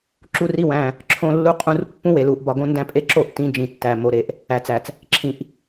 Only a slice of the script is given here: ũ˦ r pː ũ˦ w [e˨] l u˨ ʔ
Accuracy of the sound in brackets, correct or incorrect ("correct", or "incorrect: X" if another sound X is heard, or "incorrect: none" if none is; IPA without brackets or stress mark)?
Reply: correct